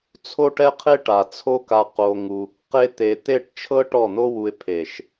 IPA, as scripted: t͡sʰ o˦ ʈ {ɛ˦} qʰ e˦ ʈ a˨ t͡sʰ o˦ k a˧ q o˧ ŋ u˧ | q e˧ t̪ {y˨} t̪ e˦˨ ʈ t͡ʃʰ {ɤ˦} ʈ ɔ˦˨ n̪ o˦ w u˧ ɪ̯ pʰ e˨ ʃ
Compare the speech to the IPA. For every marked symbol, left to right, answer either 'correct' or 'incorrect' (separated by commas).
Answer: correct, incorrect, correct